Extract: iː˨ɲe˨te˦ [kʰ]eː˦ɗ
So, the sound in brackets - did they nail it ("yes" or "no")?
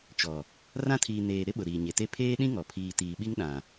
no